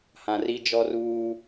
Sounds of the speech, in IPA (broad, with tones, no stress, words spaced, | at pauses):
hã˨ri˦d͡ʒɔ˦ruː˦